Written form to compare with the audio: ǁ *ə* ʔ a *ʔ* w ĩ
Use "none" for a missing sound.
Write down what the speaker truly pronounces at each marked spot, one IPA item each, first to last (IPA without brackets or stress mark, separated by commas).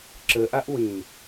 ə, ʔ